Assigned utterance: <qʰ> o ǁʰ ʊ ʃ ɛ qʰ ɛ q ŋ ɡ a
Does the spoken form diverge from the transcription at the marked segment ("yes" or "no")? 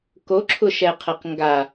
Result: yes